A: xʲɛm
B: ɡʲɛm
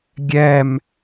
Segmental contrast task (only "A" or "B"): B